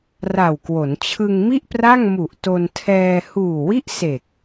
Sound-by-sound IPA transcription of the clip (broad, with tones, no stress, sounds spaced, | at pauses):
r a˨˩ w k w o˩˦ n t͡ɕʰ ɯ˧ ŋ m i˥˩ ʔ p r a˥˩ ŋ m u˨˩ ʔ t o˧ n tʰ ɛː˧ h uː˨˩ w i˥˩ ʔ s e˨˩ k̚